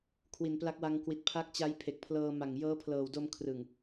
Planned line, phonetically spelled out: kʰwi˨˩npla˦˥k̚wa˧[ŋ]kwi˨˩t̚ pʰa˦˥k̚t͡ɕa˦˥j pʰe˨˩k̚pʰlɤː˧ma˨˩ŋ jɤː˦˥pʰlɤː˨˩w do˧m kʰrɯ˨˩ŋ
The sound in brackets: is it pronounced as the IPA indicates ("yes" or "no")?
yes